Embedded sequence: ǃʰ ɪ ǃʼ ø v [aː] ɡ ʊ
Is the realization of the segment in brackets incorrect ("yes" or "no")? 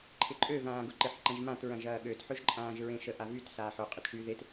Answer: yes